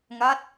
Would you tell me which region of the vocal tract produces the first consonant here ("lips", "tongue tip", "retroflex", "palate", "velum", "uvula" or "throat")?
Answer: velum